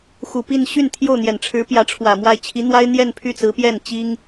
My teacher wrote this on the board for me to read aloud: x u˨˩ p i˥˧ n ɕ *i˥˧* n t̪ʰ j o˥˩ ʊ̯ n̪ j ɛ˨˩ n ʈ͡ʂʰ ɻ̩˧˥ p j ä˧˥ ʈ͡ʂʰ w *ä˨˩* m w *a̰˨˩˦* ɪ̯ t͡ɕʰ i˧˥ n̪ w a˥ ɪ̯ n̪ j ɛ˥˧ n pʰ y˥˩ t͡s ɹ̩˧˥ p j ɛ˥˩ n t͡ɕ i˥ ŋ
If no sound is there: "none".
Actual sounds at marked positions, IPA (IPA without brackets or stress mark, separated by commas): y˥˧, ä˨˩, a˥˩